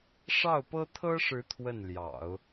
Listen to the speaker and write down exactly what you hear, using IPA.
ʂ ɑ˥˩ ʊ̯ p ɤ˥ t̪ʰ ɤ˥ ʂ ɻ̩˧˥ t̪ʰ w ə˥˩ n l j ɑ̰˨˩˦ ʊ̯

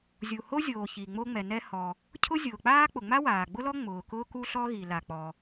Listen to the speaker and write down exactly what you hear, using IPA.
zʲ u˩ h o˥ zʲ oː˩ ç i˩ ŋ͡m o˥ ŋ͡m ɛ˩ n ɛ˥ h ɔ˩ | cʰ ʊ˥ zʲ ʊː˩ k͡p aː˥ k͡p ʊ˩ ŋ͡m a˥ w aː˩ ɡ͡b ʊ˥ l ɔ˥ ŋ͡m ʊː˩ k ʊː˥ k u˥ ɬ ɔ˥ ɣ i˩ l a˩ k͡p ɔ˩

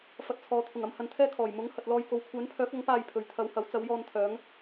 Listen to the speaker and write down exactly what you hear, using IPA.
f ɐ˨ t̚ t͡sʰ ɔː˨ t̪ʰ ʊ˨˩ ŋ ɐ˧ m h ɐ˧ n t̪ʰ ɛː˥ kʰ ɔː˨˩ j m ʊ˨˥ ŋ h ɐ˨ t̚ l ɔː˧ j k o˨ w kʷʰ œː˨˥ n pʰ œː˨˥ k̚ ɐ˨˥ ŋ p aː˧ j pʰ ɵ˨ ɥ t̪ʰ ɐ˨˧ w h ɐ˨˧ w t͡s ɐ˨˧ w j ɔː˧ n t̪ʰ œː˨˥ ŋ

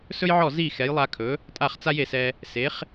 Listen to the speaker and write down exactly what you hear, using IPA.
s ɵ˥ j ʕ ɔ˥˩ z i˥˩ x ɛ˩˥ j lˠ a˧ kʰ ɵ˩˥ | tʼ a˥˩ χ t͡s a˥ j e˩ s ɛ˧ | s e˩˥ χ

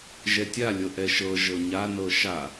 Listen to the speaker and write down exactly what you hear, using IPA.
ʒ ɛ tʲ a lʲ ɤ ʔ ɛ ʃ ɤ ʒ ɤ ɲ a n ɤ ʃ a

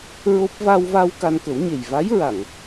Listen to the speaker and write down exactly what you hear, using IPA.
ɹ o˦˥ p̚ v a˧ w v a˧ w k a˧ n k ə˨˩˦ w ɲ e˨˩ j v a˧˥ j ɹ a˨˩˨ ŋ

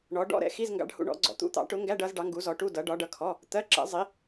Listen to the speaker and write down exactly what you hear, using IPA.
ɳ ɔ˨˥ ɖ ɔ̰˧˥˧ ɾ ɛ̰˨˥ x i˧˥˧ z ŋ ɡ ɑ̰˧˥˧ ɖ h ṵ˧˥˧ ɳ ɔ̰˨˥ ɡ͡ǀ ɔ̰˨˥ t̪ ṵ˧˥˧ t̪ ɑ̰˨˥ ʈ ʊ˨˥ ŋ ɡ æ˧˥˧ ɖ ʌ˨˥ z ɖ ɑ˨˥ ŋ ɡ u˨˥ z ɔ˨˥ ʈ u˧˥˧ d ʌ˨˥ ɖ ɒ˨˥ ɖ ʌ˨˥ kʰ ɔ˧˥˧ | t̪ ɜ˧˥˧ ǁ ɛ̰˨˥ zˤ i˨˥

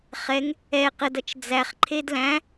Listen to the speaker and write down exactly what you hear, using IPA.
χ ɛ ŋ | ɛ q ə d ʌ t͡ʃ d͡z æ χ ǃʰ e d l æ̃

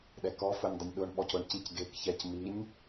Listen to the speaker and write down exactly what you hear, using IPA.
ɗ ɛ k ɔ f ʊ nʲ dˤ ʊ nʲ ɗ ʊ ɳ ɓ ɔ c ʊ ɳ c i c ɡ e k ç ɛ c m i nʲ

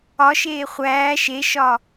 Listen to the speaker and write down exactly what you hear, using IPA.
ɒ ʃ eː χʷ æː ʃ e ʃ ɒ

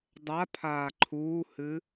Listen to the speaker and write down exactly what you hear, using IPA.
dˤ a pʰ aː ǃʰ uː h ɨ

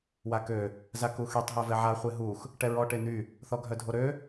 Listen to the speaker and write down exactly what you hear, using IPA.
w a k ø | z a k u x y tˤ ɦ œ v ɛ ʕ a χʷ e ɦ u x | ʈ ɛ ɹ ɔ ʈ e n̪ y | θ ɔ ɡʱ œ dʱ o ɾ ø

